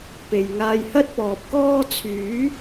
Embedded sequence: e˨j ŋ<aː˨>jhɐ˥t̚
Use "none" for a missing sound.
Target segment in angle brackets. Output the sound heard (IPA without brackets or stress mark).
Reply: aː˧